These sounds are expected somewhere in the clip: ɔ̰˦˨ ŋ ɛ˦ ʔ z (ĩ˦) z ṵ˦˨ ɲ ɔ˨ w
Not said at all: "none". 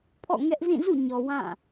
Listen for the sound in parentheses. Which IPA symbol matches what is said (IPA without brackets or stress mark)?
ĩ˦˨